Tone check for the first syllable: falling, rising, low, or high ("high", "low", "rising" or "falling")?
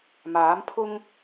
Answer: rising